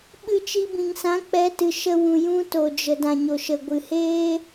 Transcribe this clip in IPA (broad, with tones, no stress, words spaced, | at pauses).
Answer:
ɓɨ˧t͡ʃi˧ bĩ˨ŋsã˨˦ k͡pɛ˨˦tɨ˨ʃə˧ wũ˨jũ˧ to˨d͡ʒə˨ dã˨ɲo˨ʃə˨ ɡʷɨ˨heː˦